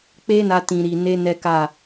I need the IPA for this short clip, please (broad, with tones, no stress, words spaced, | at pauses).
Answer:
k͡pe˦na˧ tĩ˨ɾi˨ne˧ nɛ˦ka˦˨